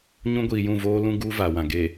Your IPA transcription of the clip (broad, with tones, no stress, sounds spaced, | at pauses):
ɲ ũ˦ ɡʷ iː˨ j ũ˦˨ v oː˦ l ũ˦ ɡ uː˦ v a˨ w ã˨ ɡ e˨